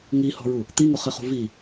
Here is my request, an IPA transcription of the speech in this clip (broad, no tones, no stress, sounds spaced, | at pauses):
ŋ i h ɔ̤ ɹ u | t̪ i ŋ ʊ χ ɪ χ ṳ v i